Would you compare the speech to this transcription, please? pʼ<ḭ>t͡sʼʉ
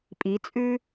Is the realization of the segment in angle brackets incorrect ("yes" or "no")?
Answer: yes